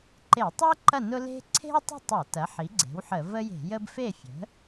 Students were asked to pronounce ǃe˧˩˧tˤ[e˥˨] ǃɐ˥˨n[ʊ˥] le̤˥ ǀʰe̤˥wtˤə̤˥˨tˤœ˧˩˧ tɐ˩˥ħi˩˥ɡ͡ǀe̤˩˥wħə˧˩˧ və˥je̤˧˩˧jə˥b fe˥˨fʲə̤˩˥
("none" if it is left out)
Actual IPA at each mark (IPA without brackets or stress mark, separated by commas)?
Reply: e˥, ʊ˥